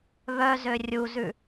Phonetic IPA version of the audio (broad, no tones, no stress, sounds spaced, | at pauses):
β œ z ø rʲ u z ʉ